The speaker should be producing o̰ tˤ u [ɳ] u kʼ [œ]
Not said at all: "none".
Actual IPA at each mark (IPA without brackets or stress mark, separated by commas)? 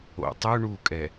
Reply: ɳ, ɛ